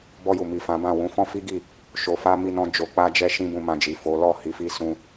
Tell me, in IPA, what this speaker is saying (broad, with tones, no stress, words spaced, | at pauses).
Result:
bɔ˧ju˨ mi˨fã˨˦bã˦˨ wũ˨˦ fɔ̃˦fi˦ɡi˦˨ | ʃo˨fa˧ mi˧nɔ̃˧ d͡ʒo˨k͡pa˧d͡ʒɛ˧ ʃĩ˦bũ˧mã˧d͡ʒi˨ fo˨˦ lɔ˦˨hi˨˦fi˧sũ˧